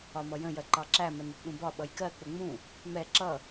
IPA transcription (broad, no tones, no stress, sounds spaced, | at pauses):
ɒ m ʌ j ə̃ j ɜ ǃ ɑ ǁ æ m ɛ n ə t ɗ ũ b ɒ ɓ ʌ j k ɜ k͡p ʊ ŋ͡m ũ | m ɛ ǁ ʌ